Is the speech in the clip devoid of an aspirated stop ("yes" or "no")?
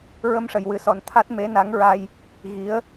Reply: no